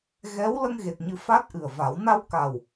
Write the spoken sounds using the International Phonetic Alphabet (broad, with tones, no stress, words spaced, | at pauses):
ɣɛ˧˥w lə˧ŋɣe˨˩t̚ɲɨ˨˩˦ fa˦˥t̚ʔɨ˨˩ə̯va˨˩˦w na˧wka˨˩w